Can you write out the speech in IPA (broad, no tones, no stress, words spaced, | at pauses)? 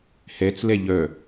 hɛt͡slɛ ʎœ